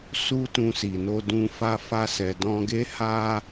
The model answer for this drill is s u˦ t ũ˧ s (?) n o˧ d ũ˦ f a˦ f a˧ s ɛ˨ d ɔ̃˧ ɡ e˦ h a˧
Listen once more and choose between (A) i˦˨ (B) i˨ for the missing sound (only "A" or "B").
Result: B